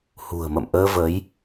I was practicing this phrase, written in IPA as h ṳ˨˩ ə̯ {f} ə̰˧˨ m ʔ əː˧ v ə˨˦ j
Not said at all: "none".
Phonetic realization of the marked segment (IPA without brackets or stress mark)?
m